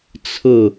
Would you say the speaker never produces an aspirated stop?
no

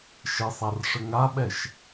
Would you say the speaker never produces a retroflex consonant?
no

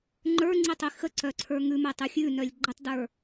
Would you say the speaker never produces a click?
no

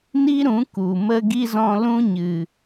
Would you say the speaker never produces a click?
yes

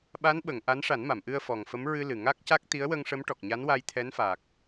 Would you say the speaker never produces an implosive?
no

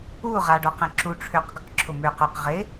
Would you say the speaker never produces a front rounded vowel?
no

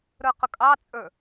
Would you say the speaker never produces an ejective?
no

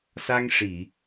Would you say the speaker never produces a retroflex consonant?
no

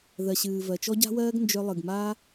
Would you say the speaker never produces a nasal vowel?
yes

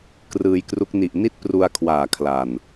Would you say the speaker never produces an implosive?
yes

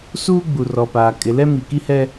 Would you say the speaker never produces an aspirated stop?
yes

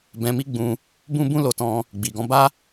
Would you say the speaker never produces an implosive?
yes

